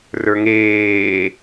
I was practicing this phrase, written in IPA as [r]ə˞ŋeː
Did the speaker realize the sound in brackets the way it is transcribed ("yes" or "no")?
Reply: yes